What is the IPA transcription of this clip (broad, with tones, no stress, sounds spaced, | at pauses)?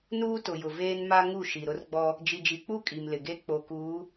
n uː˦ t ʊ˨ j ʊ˨ v eː˦ n m a˦ ŋ u˦˨ ʃ i˨ ɾ ʊ˦ r ɡ͡b ɔ˦ | d͡ʒ i˨ d͡ʒ i˨ k͡p u˦˨ kʼ i˨ m l ɪ˨ ɡ e˦ k͡p o˨ k uː˨˦